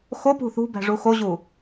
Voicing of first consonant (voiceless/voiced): voiceless